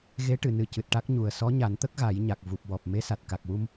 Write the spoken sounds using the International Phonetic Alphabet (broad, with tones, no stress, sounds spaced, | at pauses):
ɣ e˧˥ ʈ ɨ˨˩˨ n ɨ˨˩ c ɨ˨˩ t̚ ʈ a˦˥ k̚ ɲ u˨˩ ə̯ s ɔ˧˥ ɲ a˨˩˦ n t̪ ə˦˥ k̚ ɣ a˨˩˦ j ɲ a˨˩ k̚ v u˨˩ p̚ w ɔ˨˩ p̚ m e˧˥ s a˨˩ t̚ k a˨˩ k̚ w u˧ m